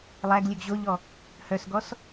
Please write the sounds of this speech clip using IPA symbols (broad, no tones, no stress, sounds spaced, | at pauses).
lˠ æ ɡ lʲ ɵ ɡ ʑ o ʎ ɔ | h œ s ɡ ɔ s